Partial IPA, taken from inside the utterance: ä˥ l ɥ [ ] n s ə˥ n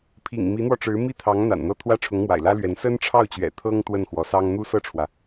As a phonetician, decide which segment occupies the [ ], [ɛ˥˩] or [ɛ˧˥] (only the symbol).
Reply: ɛ˧˥